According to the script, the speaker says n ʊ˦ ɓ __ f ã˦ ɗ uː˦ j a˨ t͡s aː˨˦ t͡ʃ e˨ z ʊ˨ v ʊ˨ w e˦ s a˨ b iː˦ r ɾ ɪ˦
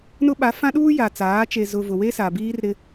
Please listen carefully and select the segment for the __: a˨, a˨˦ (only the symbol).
a˨˦